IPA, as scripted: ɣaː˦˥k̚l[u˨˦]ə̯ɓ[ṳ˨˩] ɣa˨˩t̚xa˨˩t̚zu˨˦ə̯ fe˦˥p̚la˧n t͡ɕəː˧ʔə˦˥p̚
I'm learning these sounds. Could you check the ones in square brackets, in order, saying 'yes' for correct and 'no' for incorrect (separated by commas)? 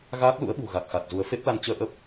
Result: no, yes